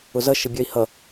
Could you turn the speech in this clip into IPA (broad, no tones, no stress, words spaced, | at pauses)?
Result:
ʊzʌ ʃəbʲœi̯hʌ